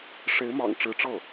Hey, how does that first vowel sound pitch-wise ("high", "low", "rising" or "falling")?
rising